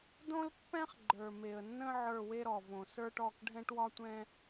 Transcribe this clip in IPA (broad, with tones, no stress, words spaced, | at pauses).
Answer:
dõ˦lpːɛ̃˦χ ɡ͡ǃə˞˨me˨ə̯nːə̃˦ ʕə˞˦˨we˦ɾɔ˨võ˨ sə˞˦ʈɔ˦˨k ɖʱɛ̃˦ʈwɒ˦tʷɛ̃˦